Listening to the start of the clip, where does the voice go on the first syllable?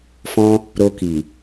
high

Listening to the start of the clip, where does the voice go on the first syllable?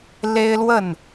high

